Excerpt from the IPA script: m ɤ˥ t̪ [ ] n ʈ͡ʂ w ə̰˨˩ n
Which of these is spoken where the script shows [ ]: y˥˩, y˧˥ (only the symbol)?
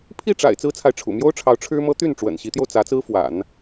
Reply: y˥˩